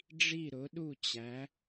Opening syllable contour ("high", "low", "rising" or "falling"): falling